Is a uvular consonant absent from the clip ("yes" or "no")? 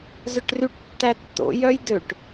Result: yes